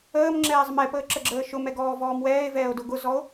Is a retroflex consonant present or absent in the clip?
absent